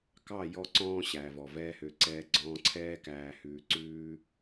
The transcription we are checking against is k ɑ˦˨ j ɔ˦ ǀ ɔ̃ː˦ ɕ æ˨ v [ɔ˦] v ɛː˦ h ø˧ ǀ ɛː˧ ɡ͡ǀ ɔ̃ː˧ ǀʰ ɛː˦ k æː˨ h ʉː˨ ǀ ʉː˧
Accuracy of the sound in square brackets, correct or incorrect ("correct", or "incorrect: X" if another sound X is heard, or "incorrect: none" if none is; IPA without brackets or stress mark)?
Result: incorrect: ɔ˨